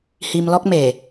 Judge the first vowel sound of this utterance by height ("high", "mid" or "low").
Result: high